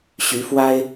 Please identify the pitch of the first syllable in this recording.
rising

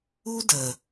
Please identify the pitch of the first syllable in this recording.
high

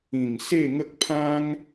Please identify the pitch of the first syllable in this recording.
low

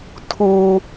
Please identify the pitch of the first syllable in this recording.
high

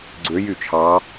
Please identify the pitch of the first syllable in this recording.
rising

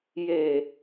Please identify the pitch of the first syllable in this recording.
low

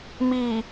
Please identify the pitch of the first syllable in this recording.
low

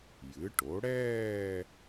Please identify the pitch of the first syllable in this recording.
rising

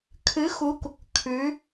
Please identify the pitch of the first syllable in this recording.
rising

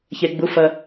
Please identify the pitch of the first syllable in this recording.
low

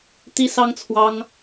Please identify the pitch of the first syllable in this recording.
high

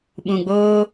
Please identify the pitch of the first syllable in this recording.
low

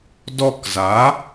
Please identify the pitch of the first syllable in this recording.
falling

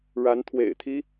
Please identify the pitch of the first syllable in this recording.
rising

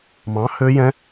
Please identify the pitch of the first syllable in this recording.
rising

